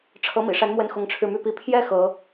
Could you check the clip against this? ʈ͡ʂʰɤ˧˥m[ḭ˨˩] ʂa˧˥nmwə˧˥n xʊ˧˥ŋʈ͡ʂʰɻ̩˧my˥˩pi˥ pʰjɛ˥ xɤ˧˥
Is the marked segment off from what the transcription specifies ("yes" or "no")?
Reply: no